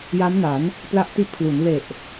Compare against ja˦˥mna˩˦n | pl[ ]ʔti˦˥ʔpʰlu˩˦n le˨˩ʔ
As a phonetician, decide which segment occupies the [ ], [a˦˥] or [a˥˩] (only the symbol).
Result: a˦˥